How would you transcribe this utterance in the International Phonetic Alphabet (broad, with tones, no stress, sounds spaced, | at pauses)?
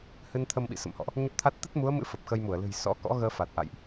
h ɨ˧ n t̪ʰ ə˧ m ɓ ḭ˧˨ s ə̰˧˨ m h ɔ̰˧˨ ʔ | ɲ ə˦˥ p̚ t̪ʰ a˦˥ t̚ t̪ ə˦˥ t̚ m u˨˦ ə̯ m ɨ̰˧˥ f ə˨˩ p̚ x ə˧ j m u˧˩ ə̯ l ɨ̤˨˩ j s ɔ̰˧˥ k ɔ̰˧˥ ɣ əː˧ f a˨˩ t̚ ʔ a̰˧˨ j ʔ